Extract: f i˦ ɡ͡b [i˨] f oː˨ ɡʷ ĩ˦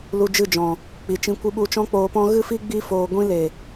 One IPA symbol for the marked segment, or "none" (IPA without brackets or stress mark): i˧